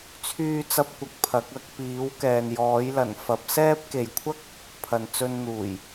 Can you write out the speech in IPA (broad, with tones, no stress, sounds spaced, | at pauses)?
t͡sʰ yː˥ t͡s ɐ˥ p̚ kʷ ɐ˧ k̚ pʰ ɐ˨˥ k̚ ɐ˧ k̚ p iː˨˥ w k ɛː˨ n j ɔː˨˥ j l ɐ˨˩ n f ɐ˨˥ p̚ s ɛː˥ p̚ k e˨ j kʷʰ ɐ˥ k̚ | pʰ ɐ˨ n t͡s ɵ˧ n n̪ uː˨˩ j